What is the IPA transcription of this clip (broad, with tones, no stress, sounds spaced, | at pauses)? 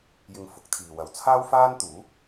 j ɪ˧ ŋ f ʊ˨˥ k̚ t̪ʰ iː˨ w ɐ˨ w t͡sʰ aː˥ w f aː˥ n t̪ uː˨˥